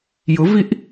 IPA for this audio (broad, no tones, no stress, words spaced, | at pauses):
jʊviʔ